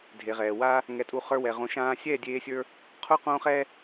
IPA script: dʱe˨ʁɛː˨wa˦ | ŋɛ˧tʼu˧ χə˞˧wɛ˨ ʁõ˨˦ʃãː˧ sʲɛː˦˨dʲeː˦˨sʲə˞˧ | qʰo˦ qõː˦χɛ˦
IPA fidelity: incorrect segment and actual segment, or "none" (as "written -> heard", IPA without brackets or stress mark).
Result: eː˦˨ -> eː˧